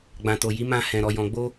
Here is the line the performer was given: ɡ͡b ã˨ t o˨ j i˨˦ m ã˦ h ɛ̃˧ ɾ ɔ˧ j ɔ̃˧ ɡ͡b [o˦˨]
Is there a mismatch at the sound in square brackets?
yes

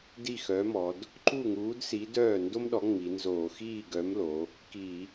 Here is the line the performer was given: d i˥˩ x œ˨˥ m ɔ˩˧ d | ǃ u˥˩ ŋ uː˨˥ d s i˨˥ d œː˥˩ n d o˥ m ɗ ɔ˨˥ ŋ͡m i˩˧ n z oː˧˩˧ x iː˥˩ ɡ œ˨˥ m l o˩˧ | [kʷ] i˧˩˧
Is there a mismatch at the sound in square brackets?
yes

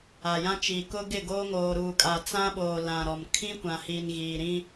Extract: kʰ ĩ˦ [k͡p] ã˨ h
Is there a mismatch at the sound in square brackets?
yes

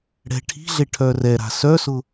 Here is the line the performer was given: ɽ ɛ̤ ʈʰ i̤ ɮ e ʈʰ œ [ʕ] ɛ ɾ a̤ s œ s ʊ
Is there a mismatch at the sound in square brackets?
yes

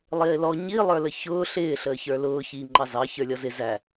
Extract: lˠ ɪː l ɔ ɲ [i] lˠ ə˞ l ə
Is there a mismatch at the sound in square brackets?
no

